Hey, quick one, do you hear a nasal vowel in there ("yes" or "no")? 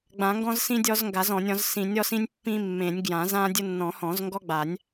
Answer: yes